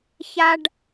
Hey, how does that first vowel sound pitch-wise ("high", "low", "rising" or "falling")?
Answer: high